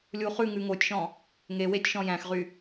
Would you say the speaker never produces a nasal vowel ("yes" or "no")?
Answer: no